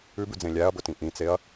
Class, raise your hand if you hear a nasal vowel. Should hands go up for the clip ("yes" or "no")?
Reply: yes